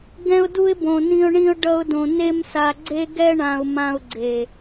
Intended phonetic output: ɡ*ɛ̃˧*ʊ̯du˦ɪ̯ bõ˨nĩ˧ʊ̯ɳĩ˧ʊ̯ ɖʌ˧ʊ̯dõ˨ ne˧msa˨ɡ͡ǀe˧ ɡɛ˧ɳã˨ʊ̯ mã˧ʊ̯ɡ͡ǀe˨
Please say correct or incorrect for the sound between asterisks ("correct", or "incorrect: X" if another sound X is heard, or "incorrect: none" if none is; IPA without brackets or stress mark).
incorrect: ɛ̃˦